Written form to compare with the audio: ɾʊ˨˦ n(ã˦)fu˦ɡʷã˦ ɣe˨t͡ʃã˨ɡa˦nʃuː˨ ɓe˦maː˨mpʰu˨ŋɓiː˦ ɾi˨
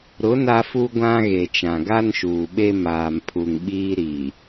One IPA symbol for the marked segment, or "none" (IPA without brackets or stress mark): a˦